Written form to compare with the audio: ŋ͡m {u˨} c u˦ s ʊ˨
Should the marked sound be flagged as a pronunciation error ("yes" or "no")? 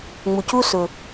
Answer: no